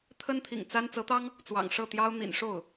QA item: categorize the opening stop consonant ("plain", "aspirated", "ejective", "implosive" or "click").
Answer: aspirated